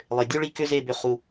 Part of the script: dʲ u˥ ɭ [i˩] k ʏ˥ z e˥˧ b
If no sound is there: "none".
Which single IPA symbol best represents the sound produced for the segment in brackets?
i˥˧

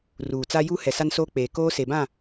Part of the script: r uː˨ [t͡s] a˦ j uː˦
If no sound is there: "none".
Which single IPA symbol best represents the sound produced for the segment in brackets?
t͡s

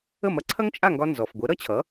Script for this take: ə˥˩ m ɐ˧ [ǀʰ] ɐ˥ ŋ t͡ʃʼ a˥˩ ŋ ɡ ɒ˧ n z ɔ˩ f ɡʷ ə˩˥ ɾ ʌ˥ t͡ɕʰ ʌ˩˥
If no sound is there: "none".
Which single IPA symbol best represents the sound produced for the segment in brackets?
ǀʰ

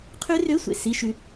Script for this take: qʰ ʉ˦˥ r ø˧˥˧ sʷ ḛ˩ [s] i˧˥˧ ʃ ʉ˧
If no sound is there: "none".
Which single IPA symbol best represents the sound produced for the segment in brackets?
s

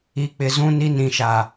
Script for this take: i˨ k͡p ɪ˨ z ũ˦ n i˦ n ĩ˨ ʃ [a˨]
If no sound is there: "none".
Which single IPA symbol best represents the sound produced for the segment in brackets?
a˨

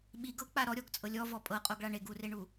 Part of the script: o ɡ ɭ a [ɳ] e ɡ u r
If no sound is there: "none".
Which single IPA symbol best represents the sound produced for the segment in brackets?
ɳ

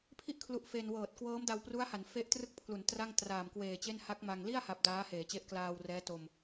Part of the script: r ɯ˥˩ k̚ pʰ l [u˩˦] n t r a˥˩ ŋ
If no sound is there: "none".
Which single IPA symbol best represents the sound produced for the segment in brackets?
u˩˦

